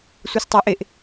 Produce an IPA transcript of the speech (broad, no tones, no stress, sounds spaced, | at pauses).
sʷ e s tˤ ɑ ʔ e ʔ